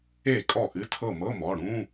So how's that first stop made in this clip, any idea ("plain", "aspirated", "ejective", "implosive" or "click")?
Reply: ejective